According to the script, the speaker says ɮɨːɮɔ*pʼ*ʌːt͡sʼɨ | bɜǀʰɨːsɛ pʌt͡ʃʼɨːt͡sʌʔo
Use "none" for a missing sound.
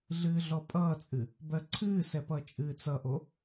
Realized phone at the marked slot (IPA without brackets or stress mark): pʼ